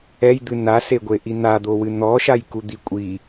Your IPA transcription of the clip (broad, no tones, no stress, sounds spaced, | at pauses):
ɛ j d̪ ɨ n a s e ɡʷ e ʔ i n̪ a d̪ o w ɨ n̪ ɔ ʃ a j k u d̪ i kʷʼ i